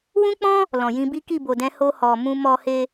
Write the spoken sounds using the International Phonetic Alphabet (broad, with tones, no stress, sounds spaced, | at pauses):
w ũ˦ k͡p ɔ̃˦ | l ɔ̃˨ j ĩ˧ b i˦ k i˦˨ b o˨ d ɛ̃˧ h o˧ h ɔ˨ m ũ˧ m ɔ˧ h e˧